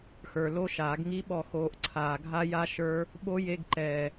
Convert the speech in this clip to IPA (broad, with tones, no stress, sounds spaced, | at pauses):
x ə˞˨ l o˦˥ ʃ aː˨˩˦ ɡ ŋ i˦˥ ɓ ɔ˦˨ x oː˨˦ ʔ ǀʰ aː˨ ɡʱ a˦˥ j a˦˥ ʃ ə˞˦˥ | ɓ o˦˥ j e˧˥˧ ɡ ǃ ɛː˨